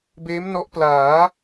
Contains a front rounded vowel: no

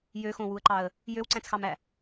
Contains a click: yes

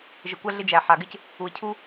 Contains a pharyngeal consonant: yes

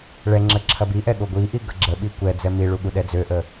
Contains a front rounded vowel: yes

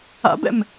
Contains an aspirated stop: no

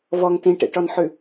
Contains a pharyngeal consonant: yes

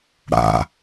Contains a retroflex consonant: yes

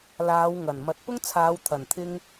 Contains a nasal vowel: no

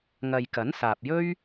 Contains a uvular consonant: no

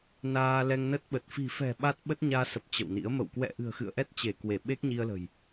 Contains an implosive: yes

